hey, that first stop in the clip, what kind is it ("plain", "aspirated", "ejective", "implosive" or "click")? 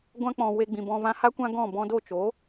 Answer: plain